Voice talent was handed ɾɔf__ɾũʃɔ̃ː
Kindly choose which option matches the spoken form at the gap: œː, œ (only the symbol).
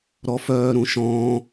œː